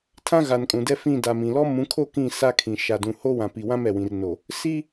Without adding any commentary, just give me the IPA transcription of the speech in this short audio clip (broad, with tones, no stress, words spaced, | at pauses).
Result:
tʰã˦ɣa˨nkʼũ˨ dɛ˦fĩ˦˨da˨mĩ˨ lɔ˦mũ˨˦kʰo˦ kĩ˦˨ sa˦kʰĩ˨ ʃa˨dũ˨ ho˦wã˨pi˨wã˦m ɛ˨wĩ˨rno˨ | si˦